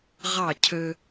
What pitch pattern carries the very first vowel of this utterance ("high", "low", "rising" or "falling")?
falling